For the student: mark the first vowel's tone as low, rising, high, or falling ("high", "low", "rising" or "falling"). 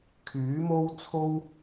rising